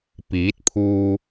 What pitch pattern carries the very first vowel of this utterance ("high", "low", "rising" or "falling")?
rising